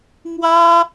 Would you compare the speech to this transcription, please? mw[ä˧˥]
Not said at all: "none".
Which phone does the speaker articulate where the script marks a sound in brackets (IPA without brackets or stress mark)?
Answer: ä˥